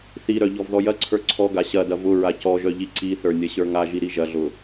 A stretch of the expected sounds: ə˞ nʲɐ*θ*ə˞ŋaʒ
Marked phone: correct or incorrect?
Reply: incorrect